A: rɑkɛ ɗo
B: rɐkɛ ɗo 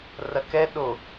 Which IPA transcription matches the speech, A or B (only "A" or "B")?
B